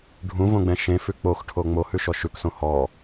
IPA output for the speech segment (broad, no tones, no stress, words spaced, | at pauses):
ɖʱũvõɡ͡bɛ̃ ʃẽfʉ k͡poxʈʰo ŋ͡mohʉʃɔ ʃʉksõ hɔ